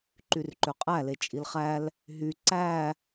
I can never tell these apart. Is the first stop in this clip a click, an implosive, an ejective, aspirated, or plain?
click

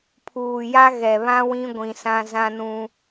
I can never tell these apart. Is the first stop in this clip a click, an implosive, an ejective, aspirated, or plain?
aspirated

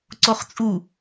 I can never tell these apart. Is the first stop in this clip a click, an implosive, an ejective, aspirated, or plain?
click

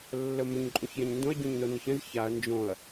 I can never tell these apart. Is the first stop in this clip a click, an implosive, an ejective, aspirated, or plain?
click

